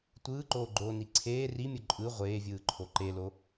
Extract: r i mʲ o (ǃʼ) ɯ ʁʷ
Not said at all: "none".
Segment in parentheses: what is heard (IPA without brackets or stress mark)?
ǃʼ